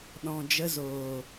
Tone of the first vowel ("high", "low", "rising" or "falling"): low